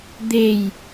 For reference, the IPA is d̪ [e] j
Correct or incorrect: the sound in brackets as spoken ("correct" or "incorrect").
correct